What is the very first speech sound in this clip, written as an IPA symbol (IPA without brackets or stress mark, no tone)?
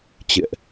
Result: t͡ɕ